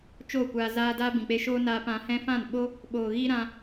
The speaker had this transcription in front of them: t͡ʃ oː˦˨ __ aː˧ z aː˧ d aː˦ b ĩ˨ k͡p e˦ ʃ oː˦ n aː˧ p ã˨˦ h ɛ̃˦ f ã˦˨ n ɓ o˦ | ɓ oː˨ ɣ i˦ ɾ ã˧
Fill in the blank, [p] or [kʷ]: kʷ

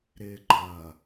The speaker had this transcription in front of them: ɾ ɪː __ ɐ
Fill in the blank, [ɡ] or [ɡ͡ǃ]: ɡ͡ǃ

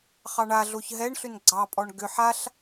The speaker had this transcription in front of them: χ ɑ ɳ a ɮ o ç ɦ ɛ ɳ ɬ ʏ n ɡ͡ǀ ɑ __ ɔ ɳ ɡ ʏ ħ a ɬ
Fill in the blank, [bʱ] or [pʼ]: pʼ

